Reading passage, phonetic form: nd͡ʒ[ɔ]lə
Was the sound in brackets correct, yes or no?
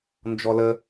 yes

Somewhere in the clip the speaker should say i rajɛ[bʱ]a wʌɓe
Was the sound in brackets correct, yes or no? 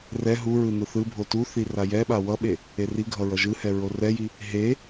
no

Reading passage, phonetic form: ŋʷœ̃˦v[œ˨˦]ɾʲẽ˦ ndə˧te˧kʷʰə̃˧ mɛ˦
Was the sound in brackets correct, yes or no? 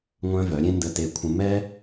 yes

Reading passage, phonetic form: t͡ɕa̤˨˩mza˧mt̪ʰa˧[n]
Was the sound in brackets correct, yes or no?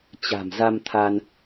yes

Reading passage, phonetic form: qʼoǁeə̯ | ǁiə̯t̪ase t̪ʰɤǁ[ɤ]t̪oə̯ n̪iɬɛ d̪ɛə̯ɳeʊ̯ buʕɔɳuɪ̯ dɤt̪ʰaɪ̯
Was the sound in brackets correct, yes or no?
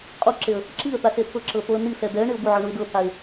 yes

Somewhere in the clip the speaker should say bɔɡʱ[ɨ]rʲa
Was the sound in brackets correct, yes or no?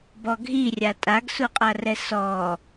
no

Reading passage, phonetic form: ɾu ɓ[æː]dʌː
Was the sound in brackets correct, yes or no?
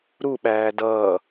yes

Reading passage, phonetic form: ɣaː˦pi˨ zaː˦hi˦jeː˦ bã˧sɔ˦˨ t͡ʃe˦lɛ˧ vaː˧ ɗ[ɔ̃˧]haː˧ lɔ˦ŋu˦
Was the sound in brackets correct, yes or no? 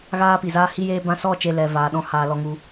no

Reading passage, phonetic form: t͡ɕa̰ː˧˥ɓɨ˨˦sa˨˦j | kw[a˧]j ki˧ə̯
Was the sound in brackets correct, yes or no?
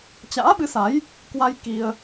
yes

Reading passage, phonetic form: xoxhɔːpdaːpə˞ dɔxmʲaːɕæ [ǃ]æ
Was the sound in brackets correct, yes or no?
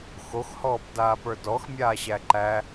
yes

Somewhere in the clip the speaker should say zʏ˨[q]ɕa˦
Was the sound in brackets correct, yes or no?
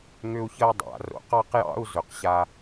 yes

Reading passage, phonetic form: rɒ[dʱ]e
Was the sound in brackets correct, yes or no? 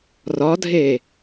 yes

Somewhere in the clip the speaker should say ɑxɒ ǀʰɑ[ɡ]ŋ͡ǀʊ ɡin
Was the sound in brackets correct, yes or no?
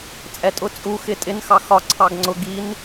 yes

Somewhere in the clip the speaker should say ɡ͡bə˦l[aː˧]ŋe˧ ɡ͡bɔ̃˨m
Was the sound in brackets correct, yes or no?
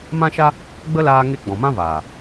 yes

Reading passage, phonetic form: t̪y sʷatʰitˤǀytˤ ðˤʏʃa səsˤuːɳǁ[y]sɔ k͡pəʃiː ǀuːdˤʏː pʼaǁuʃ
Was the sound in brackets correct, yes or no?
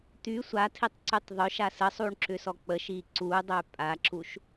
no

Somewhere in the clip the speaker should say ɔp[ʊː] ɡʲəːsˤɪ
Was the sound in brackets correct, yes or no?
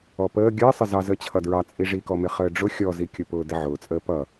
no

